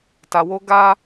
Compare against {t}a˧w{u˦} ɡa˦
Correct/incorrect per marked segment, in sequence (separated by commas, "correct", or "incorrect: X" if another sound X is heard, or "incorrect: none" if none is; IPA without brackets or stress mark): correct, incorrect: o˦